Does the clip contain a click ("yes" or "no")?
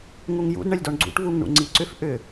yes